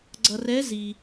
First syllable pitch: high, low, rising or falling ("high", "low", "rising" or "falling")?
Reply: low